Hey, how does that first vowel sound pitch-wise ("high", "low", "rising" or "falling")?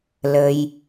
low